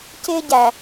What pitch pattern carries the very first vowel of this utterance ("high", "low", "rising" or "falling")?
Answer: high